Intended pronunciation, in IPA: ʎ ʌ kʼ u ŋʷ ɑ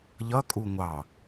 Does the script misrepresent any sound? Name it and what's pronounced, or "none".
none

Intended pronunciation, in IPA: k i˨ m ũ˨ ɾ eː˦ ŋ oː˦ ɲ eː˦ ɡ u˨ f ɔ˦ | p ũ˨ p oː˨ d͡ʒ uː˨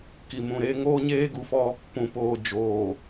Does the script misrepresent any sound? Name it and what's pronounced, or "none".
uː˨ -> oː˨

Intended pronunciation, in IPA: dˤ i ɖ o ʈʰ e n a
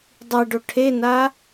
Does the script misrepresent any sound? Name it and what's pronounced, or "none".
none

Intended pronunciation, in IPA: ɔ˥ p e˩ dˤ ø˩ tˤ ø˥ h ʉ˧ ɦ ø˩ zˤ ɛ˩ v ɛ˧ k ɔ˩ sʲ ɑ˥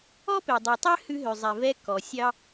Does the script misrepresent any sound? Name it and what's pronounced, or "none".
none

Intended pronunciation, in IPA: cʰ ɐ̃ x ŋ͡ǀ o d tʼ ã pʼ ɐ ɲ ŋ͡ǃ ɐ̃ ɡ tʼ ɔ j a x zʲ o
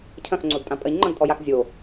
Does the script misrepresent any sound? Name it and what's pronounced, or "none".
none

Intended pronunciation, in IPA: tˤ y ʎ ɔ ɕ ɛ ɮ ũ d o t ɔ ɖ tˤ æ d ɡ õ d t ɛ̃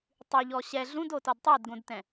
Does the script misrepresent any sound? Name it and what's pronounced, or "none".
ɖ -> d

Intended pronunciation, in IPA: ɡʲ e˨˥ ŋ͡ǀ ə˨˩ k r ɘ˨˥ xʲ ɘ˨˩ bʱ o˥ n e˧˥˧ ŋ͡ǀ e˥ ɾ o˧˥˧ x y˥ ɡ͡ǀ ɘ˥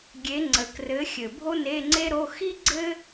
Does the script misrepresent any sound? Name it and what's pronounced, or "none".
y˥ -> i˥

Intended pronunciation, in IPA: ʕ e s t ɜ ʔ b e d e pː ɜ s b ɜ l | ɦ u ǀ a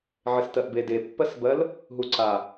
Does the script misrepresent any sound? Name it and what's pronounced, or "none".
none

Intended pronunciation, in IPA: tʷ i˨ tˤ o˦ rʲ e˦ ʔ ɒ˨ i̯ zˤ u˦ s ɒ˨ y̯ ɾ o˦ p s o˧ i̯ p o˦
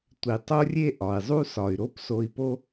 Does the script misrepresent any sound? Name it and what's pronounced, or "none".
none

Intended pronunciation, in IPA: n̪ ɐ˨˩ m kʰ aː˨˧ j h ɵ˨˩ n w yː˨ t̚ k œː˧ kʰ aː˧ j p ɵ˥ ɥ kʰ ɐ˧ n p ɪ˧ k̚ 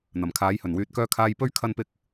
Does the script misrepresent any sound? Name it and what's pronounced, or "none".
none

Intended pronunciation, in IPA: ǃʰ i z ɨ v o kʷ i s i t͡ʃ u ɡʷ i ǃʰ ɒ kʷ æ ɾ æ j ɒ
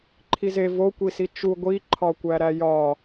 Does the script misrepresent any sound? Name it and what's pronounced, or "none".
ɨ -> e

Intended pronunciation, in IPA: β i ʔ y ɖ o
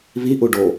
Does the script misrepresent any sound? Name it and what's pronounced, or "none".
y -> u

